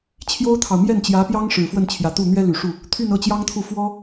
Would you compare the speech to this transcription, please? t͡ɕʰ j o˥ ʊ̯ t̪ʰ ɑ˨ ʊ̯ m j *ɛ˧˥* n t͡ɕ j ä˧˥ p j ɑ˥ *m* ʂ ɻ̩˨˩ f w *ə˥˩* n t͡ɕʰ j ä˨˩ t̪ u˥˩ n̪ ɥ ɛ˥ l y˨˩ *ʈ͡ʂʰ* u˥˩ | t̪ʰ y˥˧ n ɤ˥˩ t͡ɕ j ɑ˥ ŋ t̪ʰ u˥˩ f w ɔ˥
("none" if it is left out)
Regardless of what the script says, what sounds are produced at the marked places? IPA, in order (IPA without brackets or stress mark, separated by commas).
ɛ˥˩, ŋ, ə˥˩, ʂ